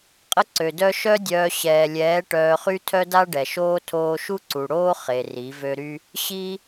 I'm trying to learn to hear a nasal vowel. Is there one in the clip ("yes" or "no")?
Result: no